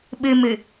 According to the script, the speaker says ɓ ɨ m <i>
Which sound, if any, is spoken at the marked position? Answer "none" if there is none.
ɨ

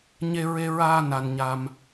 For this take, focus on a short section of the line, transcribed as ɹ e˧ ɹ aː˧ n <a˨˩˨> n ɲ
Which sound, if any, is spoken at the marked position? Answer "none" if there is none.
a˧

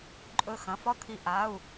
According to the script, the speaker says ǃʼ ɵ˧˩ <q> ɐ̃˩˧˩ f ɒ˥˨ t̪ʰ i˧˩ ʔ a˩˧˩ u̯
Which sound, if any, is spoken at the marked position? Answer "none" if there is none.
x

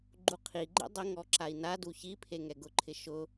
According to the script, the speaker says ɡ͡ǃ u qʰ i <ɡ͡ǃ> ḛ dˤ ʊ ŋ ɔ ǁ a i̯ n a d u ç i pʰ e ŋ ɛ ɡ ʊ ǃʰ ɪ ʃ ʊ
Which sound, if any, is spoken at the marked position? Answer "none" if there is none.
ɡ͡ǃ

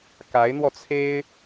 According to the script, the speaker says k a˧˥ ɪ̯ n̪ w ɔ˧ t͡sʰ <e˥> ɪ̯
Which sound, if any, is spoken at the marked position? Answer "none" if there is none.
e˥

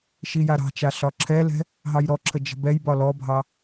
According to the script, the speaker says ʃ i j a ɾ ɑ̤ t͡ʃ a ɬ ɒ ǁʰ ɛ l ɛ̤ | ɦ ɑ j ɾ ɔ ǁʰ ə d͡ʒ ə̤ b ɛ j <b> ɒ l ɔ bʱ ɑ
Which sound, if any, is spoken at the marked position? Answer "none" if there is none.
b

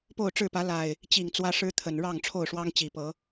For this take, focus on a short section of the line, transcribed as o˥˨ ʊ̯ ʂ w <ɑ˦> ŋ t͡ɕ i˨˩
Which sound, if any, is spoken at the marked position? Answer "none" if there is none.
ɑ˦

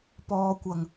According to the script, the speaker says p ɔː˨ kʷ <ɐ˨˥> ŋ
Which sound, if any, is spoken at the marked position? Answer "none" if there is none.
ɐ˨˩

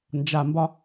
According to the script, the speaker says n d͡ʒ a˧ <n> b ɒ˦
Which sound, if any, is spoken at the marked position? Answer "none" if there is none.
m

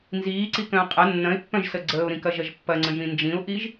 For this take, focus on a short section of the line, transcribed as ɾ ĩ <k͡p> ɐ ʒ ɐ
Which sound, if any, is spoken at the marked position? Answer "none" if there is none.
k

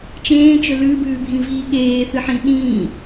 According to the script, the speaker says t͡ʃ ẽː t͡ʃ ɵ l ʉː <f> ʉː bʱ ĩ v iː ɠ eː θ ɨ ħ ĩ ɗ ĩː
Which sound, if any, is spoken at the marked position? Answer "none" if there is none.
b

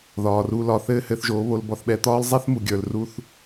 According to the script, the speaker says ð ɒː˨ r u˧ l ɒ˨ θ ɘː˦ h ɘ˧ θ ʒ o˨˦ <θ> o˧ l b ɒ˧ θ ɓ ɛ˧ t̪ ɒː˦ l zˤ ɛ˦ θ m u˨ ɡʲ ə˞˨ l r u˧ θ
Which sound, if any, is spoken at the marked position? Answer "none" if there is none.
β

